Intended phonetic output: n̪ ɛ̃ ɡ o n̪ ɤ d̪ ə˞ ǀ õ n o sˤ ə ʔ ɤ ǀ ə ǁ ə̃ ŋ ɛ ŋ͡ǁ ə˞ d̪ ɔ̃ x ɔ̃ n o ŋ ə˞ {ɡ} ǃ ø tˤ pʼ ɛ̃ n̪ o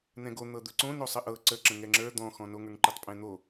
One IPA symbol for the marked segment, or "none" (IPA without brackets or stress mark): ŋ